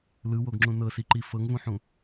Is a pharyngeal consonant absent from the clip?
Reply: no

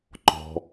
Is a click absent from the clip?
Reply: no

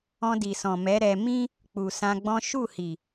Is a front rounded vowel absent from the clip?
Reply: yes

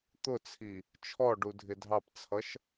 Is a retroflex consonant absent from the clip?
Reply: no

